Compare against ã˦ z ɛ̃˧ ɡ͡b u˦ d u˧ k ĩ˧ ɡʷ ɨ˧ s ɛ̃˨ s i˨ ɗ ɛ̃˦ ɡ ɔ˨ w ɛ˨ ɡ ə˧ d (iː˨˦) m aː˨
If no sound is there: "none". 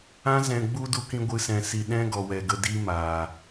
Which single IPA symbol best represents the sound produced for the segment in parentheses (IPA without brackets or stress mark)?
iː˦